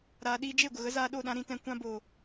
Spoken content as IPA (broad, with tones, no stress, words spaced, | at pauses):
ɾaː˨ɗiː˧d͡ʒe˦˨ɡʷə˨ ɣə˨˦zaː˧ɗo˦˨ɗã˧ ɾĩ˧tɛ̃˧ kʷã˦ boː˨